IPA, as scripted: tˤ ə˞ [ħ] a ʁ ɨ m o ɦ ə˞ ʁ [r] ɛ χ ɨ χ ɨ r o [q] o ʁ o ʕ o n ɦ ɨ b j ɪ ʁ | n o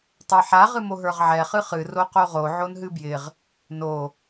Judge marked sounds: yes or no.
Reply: yes, no, yes

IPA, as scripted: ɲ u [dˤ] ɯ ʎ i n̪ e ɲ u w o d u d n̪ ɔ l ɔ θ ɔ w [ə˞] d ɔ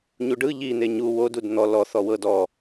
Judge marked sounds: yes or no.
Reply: no, no

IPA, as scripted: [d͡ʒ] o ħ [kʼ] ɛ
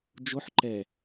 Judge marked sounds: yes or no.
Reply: yes, no

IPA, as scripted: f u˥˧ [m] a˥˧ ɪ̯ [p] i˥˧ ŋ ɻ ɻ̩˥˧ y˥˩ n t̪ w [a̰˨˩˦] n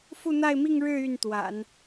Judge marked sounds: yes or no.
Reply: no, no, yes

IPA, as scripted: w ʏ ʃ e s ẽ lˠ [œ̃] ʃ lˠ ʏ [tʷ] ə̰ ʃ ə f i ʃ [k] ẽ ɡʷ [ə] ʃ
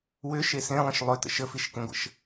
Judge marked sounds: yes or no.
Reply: no, no, yes, no

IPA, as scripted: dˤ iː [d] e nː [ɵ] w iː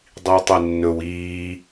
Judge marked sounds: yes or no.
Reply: no, yes

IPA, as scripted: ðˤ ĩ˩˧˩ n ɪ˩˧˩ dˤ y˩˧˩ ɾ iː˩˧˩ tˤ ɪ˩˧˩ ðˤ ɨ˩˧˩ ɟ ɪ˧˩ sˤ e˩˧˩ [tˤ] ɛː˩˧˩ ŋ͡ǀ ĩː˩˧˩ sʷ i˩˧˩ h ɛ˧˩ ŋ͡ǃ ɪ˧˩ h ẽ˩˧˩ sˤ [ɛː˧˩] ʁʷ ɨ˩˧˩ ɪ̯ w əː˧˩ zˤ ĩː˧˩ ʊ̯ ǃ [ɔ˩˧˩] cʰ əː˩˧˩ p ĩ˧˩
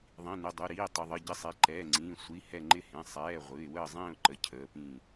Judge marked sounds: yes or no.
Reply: no, no, no

